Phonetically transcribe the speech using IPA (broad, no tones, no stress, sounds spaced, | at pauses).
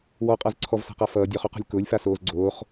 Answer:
w ɔ qʼ a z ǀʰ ɔ v s a̤ q a f ʌː dʲ ɔ χ o q ɔ̤ lʲ k ʊː lʲ f a s oː z ɡ͡ǀ oː χ